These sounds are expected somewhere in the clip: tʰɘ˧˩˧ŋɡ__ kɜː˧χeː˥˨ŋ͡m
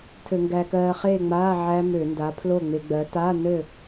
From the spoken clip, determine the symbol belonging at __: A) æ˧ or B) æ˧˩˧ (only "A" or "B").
A